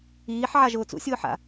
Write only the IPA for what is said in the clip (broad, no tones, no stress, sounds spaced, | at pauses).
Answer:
iː ħ ʕ a ʒ ʊː t͡s ṵ sʲ ʊː ħ a̰